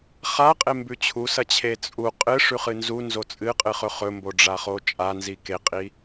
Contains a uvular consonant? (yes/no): yes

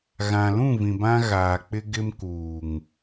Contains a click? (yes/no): no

